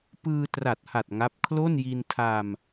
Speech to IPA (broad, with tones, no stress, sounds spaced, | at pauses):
p ɯː˧ t r a˨˩ t̚ h a˨˩ t̚ ŋ a˦˥ p̚ kʰ l o˥˩ n j i˧ n tʰ a˧ m